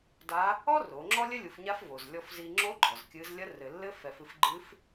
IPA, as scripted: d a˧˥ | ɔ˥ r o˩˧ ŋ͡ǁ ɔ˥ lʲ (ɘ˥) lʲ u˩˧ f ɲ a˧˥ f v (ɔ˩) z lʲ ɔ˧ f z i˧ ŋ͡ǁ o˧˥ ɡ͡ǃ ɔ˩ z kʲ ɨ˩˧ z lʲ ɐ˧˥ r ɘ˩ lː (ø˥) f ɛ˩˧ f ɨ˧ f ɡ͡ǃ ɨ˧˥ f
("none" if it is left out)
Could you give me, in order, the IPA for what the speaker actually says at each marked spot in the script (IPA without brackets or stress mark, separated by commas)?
ɘ˥, o˩, ɘ˥